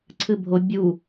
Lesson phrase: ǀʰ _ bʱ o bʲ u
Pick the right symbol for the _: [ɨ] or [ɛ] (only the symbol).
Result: ɨ